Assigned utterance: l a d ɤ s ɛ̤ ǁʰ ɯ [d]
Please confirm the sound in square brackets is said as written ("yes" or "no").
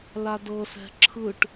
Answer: no